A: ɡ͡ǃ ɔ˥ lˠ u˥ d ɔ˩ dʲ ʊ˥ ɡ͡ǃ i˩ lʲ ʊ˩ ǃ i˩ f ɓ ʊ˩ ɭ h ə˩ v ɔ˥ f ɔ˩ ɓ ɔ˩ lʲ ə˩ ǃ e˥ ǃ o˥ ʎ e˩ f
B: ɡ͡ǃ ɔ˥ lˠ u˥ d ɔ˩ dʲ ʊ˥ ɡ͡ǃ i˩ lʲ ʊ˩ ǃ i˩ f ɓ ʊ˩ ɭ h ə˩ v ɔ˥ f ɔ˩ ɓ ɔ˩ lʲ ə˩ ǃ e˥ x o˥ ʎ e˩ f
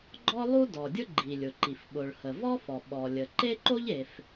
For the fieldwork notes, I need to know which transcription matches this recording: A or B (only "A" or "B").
A